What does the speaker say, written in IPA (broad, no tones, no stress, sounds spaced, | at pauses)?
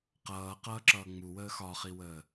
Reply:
q ʌː q ʌː ǁ ʌː ŋ͡m u w əː x ɒ χ i w əː